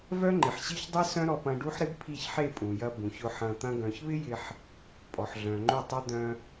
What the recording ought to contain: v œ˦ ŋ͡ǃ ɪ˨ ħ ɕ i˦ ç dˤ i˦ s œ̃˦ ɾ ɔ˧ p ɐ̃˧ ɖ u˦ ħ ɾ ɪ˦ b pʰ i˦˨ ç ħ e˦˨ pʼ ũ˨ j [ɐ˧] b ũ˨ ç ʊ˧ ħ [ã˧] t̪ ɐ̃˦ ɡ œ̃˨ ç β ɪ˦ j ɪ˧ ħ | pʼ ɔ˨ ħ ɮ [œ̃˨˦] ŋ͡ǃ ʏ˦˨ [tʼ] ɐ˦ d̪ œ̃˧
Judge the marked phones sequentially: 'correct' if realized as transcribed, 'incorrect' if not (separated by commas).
correct, incorrect, incorrect, incorrect